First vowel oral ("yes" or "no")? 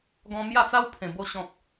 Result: no